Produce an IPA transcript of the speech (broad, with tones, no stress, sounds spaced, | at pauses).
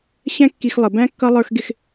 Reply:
ɕ ɛ̃˦ kː i˧ x lˠ ə˨ b æ̃˦ kː ʌ˦ lˠ ə˞˦ x ɡ ɪ˦ x